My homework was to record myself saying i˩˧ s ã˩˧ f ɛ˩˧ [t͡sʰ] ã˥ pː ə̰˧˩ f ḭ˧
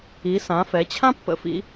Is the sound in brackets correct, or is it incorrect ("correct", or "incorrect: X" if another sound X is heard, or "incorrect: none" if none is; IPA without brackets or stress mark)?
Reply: incorrect: t͡ɕʰ